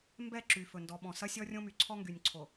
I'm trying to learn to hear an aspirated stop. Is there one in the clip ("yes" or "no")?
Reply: yes